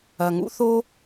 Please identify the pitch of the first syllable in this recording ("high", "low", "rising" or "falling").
low